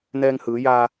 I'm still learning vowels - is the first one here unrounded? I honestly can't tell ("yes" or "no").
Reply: yes